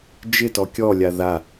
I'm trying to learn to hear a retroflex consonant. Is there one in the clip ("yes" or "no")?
no